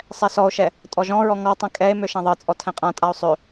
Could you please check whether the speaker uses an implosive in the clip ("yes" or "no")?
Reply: no